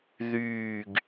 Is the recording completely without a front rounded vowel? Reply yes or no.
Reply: no